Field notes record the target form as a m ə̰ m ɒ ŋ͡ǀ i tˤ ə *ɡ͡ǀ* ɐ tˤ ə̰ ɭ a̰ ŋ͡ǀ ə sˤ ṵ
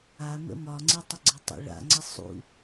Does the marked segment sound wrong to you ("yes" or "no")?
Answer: no